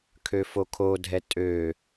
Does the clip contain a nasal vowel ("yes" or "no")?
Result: no